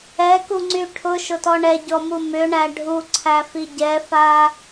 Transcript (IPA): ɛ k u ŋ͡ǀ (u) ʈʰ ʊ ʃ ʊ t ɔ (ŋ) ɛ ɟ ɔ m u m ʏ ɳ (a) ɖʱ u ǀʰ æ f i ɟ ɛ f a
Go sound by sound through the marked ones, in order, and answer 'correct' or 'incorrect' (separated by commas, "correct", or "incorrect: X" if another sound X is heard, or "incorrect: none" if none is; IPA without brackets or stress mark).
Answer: incorrect: y, incorrect: ɳ, incorrect: æ